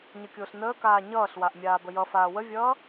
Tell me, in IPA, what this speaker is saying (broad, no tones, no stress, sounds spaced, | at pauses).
ɲ ə kʲ ʊː ɬ n əː k aː ɲ ʌː ɬ w a ʔ mʲ aː b ə j ʌ f aː w ə vʲ ʌː